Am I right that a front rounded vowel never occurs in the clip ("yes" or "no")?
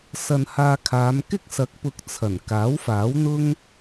yes